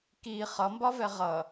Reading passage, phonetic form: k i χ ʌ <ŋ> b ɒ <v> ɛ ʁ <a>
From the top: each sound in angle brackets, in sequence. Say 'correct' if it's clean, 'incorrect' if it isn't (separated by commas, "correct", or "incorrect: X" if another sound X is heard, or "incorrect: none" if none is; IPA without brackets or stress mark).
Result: incorrect: m, correct, incorrect: ʌ